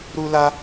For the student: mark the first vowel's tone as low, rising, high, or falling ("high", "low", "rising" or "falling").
high